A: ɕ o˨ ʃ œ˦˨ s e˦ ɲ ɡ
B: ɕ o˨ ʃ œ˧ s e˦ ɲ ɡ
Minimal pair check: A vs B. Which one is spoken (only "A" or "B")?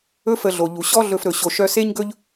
B